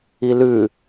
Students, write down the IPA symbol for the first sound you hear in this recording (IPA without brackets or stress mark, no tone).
i